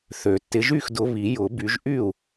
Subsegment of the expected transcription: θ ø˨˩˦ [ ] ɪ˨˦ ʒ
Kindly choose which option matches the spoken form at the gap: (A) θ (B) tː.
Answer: B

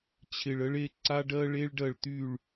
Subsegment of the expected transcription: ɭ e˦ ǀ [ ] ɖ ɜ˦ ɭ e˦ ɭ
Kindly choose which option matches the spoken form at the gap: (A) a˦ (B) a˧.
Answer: A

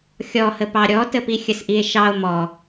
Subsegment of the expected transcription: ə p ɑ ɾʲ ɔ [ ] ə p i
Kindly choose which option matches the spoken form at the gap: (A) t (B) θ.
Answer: A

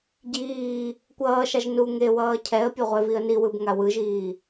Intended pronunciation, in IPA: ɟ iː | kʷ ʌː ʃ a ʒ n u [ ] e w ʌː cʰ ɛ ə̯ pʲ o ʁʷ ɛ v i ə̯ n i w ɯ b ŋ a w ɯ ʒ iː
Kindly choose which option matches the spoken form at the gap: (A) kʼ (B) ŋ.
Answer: B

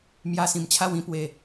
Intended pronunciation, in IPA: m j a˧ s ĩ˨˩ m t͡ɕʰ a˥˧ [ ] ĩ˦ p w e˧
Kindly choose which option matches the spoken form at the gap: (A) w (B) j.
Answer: A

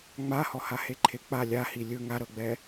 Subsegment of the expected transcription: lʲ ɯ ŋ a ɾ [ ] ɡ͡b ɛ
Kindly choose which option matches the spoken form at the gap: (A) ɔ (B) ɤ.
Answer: B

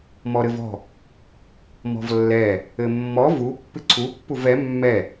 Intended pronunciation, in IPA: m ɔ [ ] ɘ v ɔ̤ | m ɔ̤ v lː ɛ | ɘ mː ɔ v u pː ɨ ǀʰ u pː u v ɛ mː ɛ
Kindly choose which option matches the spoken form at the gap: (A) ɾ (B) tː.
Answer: A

